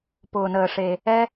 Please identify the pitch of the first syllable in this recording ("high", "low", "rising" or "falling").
low